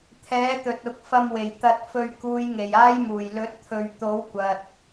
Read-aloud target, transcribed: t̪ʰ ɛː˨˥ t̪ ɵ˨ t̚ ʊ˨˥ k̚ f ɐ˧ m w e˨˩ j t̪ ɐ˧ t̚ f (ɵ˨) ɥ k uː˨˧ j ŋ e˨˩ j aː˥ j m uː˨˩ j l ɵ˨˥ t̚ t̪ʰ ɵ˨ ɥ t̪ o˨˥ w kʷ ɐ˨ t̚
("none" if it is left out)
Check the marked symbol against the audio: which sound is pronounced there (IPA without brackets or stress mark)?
ɵ˧